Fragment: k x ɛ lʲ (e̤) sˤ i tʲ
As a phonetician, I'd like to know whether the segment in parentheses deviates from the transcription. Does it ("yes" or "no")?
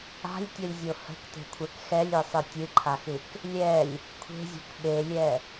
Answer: yes